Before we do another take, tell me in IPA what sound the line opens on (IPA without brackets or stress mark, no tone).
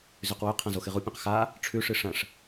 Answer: z